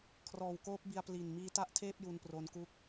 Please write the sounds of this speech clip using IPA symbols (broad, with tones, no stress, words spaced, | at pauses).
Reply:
kʰrɔː˨˩wkoː˦˥p̚ bi˧a̯ pli˨˩n miː˦˥ta˥˩ʔtʰeː˥˩p̚ ju˧npro˦˥nku˥˩k̚